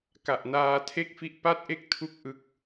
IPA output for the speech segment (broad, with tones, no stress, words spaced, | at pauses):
ka˨˩ʔnaː˧tʰe˥˩k̚fi˥˩ʔ pa˥˩t̚ʔe˥˩k̚tʰu˦˥k̚ ʔɯ˦˥k̚